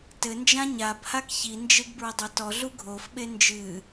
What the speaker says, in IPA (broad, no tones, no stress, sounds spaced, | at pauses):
t ɘ n d͡ʒ ã ɲ a b h a k ç i n d͡ʒ e ɡ b ɹ ɐ dˤ o t ɔ ɮ u ɡʱ o f ɓ e n d͡ʒ ɨ